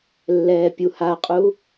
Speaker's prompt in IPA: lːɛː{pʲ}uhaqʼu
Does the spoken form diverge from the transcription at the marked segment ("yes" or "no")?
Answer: no